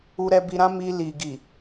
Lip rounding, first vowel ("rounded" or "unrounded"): rounded